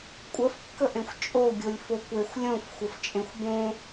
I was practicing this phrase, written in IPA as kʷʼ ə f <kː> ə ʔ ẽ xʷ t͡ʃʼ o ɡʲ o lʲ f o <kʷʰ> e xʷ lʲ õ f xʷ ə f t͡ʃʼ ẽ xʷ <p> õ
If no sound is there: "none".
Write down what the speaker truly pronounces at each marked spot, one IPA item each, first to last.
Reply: kː, kʷ, b

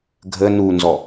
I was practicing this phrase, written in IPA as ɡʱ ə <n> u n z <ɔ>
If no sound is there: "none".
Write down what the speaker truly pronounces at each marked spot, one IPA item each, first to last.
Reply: n, ɔ

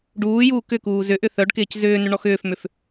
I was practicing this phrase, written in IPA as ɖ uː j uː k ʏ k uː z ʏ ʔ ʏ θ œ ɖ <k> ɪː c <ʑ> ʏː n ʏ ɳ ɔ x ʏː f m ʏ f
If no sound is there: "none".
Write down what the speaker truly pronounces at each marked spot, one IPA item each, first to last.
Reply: k, z

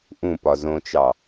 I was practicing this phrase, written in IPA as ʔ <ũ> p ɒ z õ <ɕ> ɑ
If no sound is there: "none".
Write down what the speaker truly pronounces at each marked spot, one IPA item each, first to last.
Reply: ũ, t͡ʃ

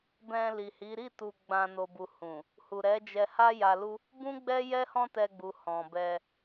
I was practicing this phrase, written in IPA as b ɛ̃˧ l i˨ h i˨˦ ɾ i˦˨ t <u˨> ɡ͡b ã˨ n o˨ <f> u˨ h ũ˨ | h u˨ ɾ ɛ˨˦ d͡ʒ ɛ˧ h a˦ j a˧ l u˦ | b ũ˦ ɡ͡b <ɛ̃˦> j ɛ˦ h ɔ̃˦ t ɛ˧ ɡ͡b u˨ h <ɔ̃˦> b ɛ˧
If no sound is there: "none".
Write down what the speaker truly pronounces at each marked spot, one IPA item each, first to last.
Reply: u˨, b, ɛ˦, ɔ̃˨

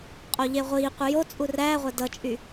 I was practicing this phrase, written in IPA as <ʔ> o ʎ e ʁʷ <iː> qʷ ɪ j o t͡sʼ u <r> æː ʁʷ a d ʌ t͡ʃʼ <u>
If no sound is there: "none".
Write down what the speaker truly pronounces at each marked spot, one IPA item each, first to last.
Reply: qʼ, iː, r, y

